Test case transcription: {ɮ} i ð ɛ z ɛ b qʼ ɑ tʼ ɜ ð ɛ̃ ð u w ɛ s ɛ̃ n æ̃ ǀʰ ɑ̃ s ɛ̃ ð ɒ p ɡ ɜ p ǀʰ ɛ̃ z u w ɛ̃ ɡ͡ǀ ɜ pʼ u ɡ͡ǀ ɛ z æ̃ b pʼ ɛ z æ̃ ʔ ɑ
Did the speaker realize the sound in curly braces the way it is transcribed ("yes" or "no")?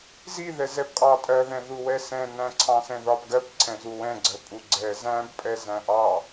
no